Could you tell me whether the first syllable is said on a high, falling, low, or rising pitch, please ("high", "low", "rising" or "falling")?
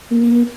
high